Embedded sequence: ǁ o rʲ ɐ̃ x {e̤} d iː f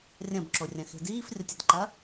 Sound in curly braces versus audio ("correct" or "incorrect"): correct